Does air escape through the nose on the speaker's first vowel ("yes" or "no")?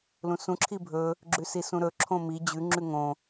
yes